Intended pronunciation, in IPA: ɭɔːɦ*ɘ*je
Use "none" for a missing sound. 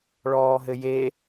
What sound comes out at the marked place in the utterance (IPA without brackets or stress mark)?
ɘ